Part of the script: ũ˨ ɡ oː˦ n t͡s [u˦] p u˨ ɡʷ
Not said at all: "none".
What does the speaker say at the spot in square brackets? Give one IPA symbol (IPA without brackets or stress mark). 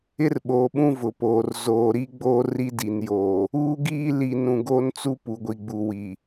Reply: u˦